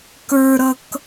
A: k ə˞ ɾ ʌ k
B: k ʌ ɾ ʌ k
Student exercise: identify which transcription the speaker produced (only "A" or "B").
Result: A